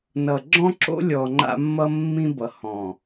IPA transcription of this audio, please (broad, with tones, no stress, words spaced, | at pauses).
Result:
nʌ˨ɡ͡ǁɔ̃˦ǁo̰˦lʲɔ˨ ŋ͡ǃa̰˦mːʌ˦ mːĩ˦bʌ˨ hɔ̃˨